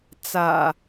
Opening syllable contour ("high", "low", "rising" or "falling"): low